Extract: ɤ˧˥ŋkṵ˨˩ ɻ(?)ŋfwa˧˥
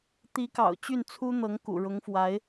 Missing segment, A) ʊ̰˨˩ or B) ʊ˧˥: B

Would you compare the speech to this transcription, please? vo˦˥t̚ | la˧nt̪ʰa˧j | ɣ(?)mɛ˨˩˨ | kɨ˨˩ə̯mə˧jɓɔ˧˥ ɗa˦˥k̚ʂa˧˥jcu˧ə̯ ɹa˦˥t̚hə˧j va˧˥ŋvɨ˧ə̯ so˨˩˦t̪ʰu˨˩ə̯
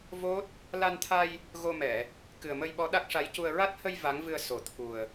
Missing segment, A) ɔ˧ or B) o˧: B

